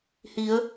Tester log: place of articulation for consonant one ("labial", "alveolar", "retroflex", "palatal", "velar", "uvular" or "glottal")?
glottal